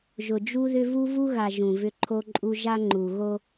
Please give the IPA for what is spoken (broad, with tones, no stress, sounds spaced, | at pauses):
ʒ ʊ˨ d͡ʒ u˦ ð ʏ˦ v u˦ v u˦ ɣ a˨ ʒ ũ˨ v ʏ˦ ǃʰ o˦ ǃʼ u˦ ʒ a˦ ŋ͡ǃ u˨ ɣ o˦